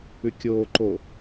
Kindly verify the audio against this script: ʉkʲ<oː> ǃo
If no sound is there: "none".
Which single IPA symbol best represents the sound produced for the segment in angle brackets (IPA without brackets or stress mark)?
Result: oː